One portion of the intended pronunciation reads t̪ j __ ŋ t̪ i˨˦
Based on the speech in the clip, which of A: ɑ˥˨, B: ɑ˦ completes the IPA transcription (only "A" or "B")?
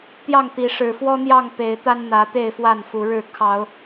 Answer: A